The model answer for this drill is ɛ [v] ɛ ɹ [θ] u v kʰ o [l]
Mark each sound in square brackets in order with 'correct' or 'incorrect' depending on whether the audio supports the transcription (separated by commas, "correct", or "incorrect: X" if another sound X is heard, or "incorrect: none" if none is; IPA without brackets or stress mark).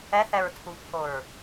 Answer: incorrect: θ, incorrect: tʰ, incorrect: ɹ